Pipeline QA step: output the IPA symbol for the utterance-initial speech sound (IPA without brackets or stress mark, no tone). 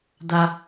d̪